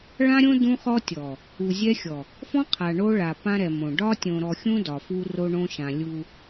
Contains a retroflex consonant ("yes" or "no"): yes